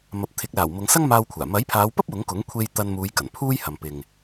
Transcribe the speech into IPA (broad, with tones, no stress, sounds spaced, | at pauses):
m ɐ˨ p̚ t̪ʰ ɪ˨˥ k̚ l aː˨˩ w m ʊ˨˧ ŋ s ɐ˥ ŋ m aː˧ w kʷʰ aː˨˩ m ɐ˨˥ j pʰ aː˨˧ w p ɐ˥ p̚ w ʊ˨˥ ŋ k ʊ˨˥ ŋ kʷʰ e˧ j t̪ ɐ˧ n m uː˨˧ j k ɐ˨˩ n pʰ uː˥ j h ɐ˨ m p ɪ˨ ŋ